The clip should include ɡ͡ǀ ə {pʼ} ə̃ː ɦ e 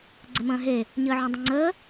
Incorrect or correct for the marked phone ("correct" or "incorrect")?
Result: incorrect